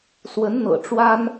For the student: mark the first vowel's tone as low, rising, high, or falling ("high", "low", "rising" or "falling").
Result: rising